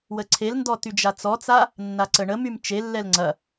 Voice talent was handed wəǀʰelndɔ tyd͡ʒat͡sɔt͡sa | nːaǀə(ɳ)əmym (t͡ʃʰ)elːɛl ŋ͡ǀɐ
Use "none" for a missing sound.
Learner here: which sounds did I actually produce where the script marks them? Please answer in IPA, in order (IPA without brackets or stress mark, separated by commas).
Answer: ɳ, t͡ʃ